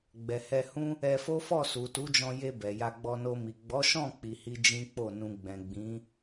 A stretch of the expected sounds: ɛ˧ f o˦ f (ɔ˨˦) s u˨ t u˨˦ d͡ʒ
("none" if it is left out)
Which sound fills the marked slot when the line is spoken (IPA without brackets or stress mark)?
ɔ˦˨